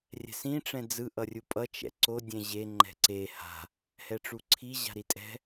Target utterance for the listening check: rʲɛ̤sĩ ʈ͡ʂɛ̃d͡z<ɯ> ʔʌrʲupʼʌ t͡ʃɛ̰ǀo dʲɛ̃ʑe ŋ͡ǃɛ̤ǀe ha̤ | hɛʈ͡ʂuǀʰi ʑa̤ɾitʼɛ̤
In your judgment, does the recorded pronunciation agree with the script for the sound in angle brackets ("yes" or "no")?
yes